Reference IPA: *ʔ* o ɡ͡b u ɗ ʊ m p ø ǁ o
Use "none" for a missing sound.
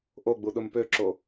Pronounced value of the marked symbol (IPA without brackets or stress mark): ʔ